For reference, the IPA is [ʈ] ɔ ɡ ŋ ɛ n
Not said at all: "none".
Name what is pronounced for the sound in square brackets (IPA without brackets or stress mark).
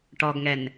ʈ